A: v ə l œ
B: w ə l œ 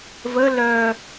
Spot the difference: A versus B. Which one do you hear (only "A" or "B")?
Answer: A